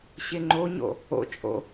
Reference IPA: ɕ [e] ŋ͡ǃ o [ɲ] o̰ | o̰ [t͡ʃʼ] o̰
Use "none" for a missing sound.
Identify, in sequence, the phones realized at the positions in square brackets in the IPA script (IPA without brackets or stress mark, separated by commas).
e, ɲ, t͡ʃʼ